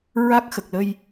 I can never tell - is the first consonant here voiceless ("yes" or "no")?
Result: no